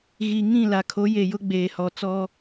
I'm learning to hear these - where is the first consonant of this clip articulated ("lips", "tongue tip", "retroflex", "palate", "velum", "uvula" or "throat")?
velum